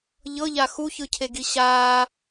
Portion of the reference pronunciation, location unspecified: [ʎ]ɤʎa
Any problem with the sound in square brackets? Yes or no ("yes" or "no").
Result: no